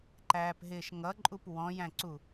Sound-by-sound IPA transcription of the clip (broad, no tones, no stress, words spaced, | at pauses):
ǃæːpɦɪːʃŋʌǃʼup wɔ̃jæ̃ǀu